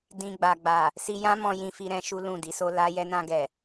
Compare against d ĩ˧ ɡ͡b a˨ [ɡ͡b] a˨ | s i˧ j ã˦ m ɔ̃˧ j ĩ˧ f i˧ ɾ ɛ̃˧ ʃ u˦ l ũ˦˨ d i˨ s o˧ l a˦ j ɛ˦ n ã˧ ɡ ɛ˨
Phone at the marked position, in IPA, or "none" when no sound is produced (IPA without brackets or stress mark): ɡ͡b